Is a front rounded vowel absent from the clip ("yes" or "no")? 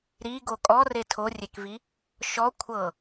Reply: yes